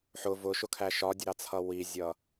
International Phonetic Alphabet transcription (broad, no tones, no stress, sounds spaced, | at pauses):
ħ ʊ v ʊ ʃ ʊ kʰ æ ʃ ɒ dʲ ə ɾ ɑ t͡sʰ ʌ w i zʲ ʌ